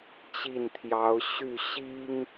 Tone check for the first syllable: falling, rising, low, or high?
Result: falling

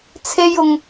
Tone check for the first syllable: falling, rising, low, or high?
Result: high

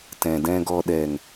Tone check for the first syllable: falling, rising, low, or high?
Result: low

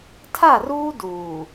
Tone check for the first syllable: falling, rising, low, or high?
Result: falling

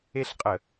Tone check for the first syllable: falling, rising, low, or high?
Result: falling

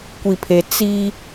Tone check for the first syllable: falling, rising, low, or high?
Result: low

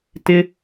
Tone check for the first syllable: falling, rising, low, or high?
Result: high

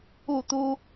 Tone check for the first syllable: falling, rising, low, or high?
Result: falling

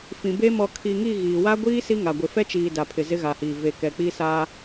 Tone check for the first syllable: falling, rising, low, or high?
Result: low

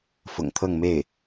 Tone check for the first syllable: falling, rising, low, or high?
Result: low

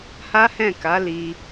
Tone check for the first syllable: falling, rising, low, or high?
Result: high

